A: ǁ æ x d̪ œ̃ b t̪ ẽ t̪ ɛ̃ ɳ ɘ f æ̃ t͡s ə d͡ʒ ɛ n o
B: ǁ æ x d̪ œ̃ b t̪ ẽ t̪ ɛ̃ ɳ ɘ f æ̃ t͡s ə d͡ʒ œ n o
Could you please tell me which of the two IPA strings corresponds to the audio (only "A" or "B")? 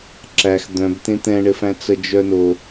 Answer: B